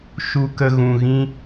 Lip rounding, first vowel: rounded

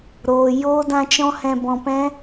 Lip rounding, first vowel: rounded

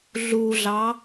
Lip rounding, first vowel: rounded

